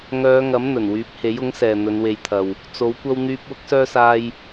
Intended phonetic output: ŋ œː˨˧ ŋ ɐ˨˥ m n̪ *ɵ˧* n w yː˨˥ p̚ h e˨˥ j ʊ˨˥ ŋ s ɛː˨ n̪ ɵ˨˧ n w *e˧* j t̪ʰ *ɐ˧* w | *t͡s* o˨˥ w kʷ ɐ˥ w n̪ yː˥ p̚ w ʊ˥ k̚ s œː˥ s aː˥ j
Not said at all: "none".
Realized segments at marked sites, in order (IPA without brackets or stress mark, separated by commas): ɵ˨˩, e˧, ɐ˧, t͡s